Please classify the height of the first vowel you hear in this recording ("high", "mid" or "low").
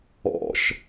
mid